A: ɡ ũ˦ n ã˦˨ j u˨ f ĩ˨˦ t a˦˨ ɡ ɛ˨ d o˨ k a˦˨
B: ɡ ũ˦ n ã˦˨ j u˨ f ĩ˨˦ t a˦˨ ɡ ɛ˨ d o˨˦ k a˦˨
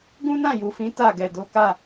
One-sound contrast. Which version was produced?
B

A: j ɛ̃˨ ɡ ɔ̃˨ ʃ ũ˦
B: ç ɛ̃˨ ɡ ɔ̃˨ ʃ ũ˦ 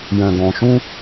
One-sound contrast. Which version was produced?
A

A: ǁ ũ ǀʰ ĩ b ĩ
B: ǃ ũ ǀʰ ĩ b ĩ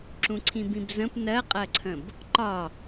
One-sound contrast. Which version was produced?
A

